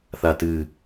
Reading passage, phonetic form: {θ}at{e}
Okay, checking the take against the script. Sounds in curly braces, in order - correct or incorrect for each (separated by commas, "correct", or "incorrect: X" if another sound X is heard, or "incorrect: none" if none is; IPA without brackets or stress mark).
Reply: correct, incorrect: ɨ